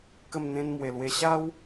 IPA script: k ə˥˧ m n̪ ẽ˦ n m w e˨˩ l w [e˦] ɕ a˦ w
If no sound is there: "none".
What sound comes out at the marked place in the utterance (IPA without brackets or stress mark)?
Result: e˧